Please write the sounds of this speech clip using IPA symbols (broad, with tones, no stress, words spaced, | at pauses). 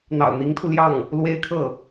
n̪ɑ̰˨˩ʊ̯n̪i˧˥ŋt̪ʰu˧ljɑ˥˩ŋ | lwe˥ɪ̯kʰɤ˥˩